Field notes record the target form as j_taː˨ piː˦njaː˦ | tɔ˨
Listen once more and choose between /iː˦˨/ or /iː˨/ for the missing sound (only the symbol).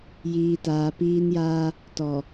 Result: iː˨